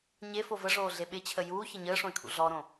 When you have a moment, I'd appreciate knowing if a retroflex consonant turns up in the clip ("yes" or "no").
yes